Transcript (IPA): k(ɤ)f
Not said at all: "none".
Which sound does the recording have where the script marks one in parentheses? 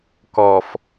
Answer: ɔ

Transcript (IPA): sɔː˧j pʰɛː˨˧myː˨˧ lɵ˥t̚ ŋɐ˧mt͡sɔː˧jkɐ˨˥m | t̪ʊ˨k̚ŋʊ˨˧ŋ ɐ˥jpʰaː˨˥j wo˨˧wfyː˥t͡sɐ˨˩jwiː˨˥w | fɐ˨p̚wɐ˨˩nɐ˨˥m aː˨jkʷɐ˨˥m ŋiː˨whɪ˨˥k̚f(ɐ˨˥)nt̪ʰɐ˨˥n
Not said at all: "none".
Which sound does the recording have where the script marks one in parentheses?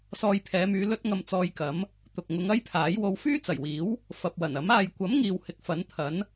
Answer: ɐ˨˥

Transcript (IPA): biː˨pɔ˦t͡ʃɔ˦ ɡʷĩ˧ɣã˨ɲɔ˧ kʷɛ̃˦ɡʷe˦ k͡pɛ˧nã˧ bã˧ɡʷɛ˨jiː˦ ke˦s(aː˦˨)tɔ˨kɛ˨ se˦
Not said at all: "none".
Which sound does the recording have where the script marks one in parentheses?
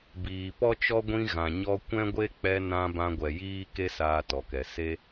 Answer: aː˧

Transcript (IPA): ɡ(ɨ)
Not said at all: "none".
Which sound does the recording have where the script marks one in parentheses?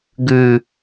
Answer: ʉ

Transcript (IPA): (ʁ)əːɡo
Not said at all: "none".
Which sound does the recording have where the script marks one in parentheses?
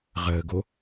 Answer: ʁ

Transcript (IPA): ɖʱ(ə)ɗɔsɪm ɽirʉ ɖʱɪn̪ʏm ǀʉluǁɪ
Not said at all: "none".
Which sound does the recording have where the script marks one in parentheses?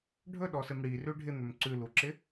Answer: ɵ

